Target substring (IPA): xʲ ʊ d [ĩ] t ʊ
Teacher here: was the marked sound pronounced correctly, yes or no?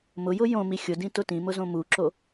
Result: yes